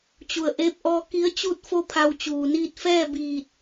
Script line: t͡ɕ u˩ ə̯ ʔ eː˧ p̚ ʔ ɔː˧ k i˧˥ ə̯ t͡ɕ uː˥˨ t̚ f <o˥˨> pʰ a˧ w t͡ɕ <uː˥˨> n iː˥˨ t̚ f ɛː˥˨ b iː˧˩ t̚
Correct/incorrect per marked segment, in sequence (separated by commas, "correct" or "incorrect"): correct, incorrect